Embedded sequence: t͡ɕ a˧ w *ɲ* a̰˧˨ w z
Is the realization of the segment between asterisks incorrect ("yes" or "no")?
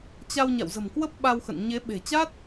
no